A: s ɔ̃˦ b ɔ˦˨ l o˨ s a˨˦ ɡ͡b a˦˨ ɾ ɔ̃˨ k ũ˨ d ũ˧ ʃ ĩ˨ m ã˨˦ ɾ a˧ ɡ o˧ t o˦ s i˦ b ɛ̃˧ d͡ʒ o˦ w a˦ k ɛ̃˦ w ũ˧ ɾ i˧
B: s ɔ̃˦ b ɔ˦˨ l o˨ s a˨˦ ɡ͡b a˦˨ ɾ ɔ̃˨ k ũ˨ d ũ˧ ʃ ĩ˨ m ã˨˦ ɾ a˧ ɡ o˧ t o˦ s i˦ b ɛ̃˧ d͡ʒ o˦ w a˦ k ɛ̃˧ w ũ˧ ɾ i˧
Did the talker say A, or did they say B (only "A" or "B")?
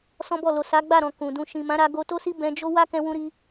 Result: B